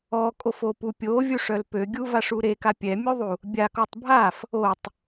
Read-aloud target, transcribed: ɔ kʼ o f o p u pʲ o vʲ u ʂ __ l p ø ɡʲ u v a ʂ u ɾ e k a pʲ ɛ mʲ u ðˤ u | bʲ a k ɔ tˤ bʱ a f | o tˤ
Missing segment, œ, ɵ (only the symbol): œ